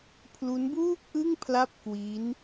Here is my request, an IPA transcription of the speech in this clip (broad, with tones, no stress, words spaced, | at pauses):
pʰlu˦˥nbuː˥˩k̚ʔɯ˥˩ŋ pʰla˥˩p̚kwi˦˥n